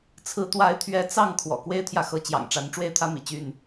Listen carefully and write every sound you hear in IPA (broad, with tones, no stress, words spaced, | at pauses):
t͡sʰɹ̩˨˦t̪wa˨˦ɪ̯t̪ʰɥɛ˨˦ t͡sɑ˥˨ŋ kʰwɔ̰˨˩kwe˦ɪ̯t̪ʰjä˨xɤ˨˦ t͡ɕjɑ̰˨˩ŋʈ͡ʂa˨˦n ʈ͡ʂwe˥˨ɪ̯t̪ʰä˦mḭ˨˩ t͡ɕy˥˨n